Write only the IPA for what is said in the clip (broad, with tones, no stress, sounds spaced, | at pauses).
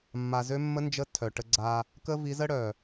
mː a˧ z ø˦ mː ə˦ n d͡ʒ ə˦ tʰ œ˨ ʈ ə˧ ɡ͡ǀ a˧ | k ə˦ v i˨˦ z ə˦ ɽ œ˨